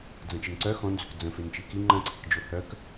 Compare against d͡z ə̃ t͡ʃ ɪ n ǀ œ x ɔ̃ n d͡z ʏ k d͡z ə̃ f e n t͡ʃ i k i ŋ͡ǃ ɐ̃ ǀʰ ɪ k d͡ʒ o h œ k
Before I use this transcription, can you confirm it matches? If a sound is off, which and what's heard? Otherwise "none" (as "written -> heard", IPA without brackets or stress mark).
none